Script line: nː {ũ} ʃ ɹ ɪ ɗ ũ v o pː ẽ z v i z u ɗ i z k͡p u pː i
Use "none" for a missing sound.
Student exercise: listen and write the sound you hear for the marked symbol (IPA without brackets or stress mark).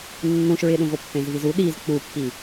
ũ